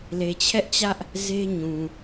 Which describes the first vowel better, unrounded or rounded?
unrounded